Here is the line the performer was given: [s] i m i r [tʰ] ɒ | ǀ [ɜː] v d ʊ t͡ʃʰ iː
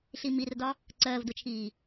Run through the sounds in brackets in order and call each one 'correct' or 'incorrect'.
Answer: incorrect, incorrect, correct

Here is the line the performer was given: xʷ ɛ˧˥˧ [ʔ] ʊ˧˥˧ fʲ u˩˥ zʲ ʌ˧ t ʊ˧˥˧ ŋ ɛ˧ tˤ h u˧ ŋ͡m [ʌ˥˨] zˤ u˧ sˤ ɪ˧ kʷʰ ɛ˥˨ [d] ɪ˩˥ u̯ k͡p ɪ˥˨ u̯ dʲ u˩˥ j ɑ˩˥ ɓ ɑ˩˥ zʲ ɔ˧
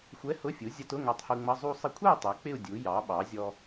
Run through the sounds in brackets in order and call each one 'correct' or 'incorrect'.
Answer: incorrect, incorrect, incorrect

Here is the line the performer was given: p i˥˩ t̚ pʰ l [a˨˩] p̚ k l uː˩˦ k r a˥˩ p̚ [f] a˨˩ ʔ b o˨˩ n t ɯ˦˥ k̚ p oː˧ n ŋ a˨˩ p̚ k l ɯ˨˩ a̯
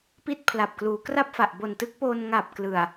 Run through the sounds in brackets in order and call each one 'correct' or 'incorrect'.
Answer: correct, correct

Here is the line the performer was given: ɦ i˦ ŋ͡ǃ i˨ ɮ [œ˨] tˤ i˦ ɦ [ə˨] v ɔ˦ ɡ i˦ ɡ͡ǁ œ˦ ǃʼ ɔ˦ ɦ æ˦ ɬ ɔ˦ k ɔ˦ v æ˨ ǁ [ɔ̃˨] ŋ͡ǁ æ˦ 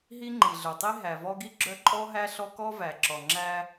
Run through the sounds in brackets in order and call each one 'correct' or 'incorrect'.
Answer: correct, incorrect, incorrect

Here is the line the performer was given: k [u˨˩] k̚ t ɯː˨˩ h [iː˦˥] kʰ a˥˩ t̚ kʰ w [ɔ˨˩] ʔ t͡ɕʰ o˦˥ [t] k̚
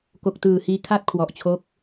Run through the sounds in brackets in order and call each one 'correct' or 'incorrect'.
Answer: incorrect, incorrect, correct, incorrect

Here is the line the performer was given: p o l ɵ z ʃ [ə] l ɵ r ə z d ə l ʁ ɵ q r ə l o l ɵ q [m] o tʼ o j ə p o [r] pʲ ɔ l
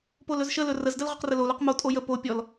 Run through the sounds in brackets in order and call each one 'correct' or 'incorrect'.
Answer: correct, correct, incorrect

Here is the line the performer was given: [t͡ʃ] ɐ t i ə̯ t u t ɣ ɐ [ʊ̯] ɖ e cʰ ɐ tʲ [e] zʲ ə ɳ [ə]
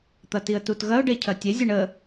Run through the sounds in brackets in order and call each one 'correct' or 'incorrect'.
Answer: incorrect, correct, correct, correct

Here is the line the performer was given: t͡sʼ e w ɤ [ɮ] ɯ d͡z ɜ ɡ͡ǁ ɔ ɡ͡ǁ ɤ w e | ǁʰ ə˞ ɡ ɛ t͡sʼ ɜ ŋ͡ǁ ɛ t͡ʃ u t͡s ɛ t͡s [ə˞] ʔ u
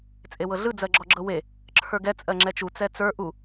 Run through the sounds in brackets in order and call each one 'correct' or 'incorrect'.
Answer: correct, correct

